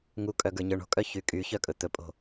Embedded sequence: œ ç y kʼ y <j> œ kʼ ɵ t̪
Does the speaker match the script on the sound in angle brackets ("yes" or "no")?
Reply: no